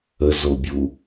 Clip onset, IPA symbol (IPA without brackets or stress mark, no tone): ə